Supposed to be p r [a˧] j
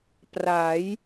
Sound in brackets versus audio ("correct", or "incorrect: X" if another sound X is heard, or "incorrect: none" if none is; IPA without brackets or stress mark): incorrect: a˩˦